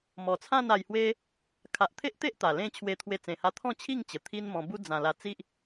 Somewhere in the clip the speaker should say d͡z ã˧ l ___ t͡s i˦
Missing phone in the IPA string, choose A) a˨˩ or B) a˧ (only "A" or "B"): B